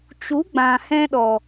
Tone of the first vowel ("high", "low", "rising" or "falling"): rising